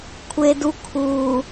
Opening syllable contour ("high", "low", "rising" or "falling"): high